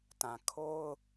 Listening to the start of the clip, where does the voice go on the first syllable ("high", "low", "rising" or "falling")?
low